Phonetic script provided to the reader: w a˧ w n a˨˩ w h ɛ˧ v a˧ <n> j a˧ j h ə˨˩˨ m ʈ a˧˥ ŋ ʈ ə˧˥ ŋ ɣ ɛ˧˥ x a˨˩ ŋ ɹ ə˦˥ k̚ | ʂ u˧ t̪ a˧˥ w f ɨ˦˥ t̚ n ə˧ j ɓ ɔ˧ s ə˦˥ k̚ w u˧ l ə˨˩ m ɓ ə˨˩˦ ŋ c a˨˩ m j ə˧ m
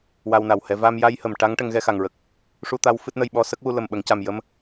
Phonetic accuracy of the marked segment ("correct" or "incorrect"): incorrect